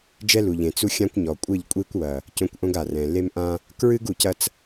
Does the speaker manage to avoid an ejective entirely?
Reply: no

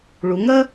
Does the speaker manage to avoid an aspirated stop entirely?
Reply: yes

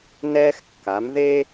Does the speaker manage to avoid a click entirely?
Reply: yes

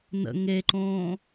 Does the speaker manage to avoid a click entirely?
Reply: no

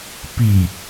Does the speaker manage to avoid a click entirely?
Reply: yes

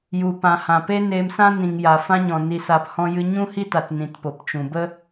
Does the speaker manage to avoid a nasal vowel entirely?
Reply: no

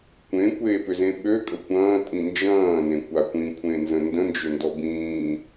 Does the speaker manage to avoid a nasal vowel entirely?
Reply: no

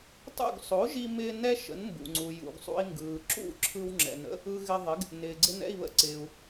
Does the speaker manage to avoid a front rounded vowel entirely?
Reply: yes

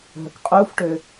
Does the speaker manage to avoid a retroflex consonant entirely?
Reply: no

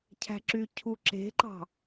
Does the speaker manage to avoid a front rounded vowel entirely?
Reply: no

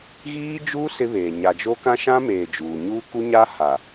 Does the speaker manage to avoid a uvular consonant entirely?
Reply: yes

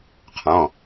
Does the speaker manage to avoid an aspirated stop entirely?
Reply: no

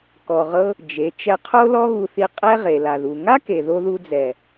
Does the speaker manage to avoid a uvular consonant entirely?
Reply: no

